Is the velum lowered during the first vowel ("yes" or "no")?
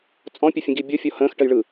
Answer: yes